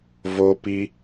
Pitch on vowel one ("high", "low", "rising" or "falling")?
high